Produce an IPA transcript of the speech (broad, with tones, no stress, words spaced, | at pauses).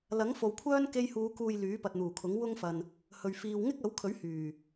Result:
lɐ˨˥ŋfo˨wkʷʰœː˥n ke˧jhuː˨˧kuː˨j lyː˨˥pɐ˨t̚n̪uː˨˩kʰʊ˨˥ŋ wʊ˥ŋfɐ˨n | hɵ˨ɥfiː˧w ŋɪ˥k̚ɐ˨˥wkʰɵ˨˥ɥ hyː˨˩